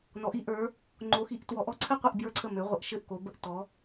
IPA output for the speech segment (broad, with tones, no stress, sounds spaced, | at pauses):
n ɔ˩˧ ʔ i˩˧ ʔ ə˞˩˧ | ŋ͡ǃ o˩˧ x i˩˧ ʔ t w ɔ˩˧ ʔ ɔ˥˩ ǀʰ ɘ˥˩ qʷ i˥˩ ʔ b j ə˞˥˩ ǀʰ ə˥˩ m ø˩˧ ʁʷ ə˩˧ ʔ ʃ ɘ˥˩ ʔ k o˩˧ b ə˥˩ ʔ t ɔ˩˧